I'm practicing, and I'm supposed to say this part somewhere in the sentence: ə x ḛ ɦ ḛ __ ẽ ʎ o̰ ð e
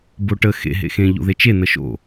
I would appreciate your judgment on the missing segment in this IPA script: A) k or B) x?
B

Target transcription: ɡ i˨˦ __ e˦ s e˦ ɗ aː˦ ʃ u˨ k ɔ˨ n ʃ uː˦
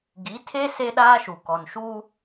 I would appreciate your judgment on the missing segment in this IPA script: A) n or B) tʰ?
B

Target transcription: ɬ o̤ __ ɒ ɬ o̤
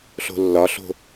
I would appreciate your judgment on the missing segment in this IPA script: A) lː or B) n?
A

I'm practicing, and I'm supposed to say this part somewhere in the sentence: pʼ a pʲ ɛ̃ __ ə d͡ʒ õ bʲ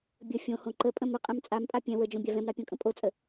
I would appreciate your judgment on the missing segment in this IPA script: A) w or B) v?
A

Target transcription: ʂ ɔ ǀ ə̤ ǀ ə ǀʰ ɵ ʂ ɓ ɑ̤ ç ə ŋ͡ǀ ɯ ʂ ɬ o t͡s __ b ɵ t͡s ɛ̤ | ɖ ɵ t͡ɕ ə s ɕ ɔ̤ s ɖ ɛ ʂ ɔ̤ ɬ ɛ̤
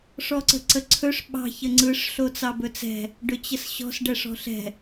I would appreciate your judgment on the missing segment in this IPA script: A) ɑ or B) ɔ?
A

